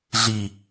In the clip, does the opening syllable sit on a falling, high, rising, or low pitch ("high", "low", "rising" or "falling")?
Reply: low